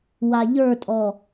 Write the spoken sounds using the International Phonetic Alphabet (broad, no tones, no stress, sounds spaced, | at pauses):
w a ʎ ə˞ tʼ ɔ